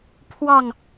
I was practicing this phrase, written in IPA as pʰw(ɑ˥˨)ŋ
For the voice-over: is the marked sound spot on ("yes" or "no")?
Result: yes